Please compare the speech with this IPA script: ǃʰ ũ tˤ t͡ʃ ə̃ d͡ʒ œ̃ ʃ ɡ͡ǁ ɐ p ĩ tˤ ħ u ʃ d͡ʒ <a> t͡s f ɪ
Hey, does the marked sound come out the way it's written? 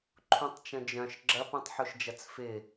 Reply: no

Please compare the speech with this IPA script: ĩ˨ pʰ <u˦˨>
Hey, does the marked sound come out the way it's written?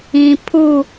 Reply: yes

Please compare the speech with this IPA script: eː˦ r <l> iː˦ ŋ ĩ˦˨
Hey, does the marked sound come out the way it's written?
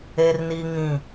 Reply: no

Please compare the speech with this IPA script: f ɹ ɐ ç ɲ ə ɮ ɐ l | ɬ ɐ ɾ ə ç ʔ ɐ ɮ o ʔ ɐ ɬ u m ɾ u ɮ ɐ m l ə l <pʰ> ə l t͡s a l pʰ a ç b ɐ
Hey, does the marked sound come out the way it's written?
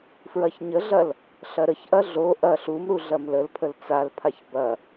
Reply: yes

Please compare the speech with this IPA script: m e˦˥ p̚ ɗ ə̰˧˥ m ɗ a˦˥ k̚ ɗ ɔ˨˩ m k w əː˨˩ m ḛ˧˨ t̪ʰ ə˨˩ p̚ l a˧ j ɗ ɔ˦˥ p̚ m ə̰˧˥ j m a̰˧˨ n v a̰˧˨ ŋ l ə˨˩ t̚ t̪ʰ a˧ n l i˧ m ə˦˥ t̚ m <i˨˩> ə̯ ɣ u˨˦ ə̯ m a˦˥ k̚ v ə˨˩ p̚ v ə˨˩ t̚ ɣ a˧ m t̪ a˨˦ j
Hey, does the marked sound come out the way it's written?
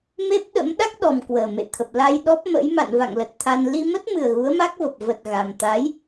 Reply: no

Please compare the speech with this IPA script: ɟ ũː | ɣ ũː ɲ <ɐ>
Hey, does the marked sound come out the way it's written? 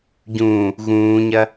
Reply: yes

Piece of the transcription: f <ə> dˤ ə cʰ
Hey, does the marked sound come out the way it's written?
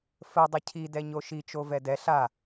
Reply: yes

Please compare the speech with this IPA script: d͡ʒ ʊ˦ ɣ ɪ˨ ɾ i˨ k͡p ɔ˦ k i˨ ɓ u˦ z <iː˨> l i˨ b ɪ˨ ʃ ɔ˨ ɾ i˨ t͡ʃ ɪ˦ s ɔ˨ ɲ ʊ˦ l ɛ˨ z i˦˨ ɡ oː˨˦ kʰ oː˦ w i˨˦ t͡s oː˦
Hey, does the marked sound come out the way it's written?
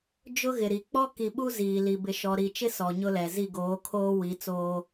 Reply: yes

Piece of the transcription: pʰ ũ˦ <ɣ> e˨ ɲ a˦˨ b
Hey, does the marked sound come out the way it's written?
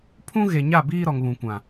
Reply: yes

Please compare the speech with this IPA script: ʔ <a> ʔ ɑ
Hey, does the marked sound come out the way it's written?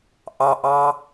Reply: no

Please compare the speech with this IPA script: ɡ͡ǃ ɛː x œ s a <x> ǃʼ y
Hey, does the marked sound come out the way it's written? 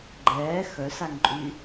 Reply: no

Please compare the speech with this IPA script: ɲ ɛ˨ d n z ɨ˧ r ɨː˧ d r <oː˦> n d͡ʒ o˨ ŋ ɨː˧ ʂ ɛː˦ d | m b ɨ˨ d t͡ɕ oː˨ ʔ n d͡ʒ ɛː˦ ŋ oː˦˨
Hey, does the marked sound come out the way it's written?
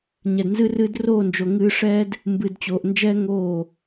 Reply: no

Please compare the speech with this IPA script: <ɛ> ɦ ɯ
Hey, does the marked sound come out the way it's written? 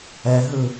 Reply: yes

